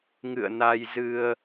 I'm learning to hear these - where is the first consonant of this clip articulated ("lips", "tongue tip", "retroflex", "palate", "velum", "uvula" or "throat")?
velum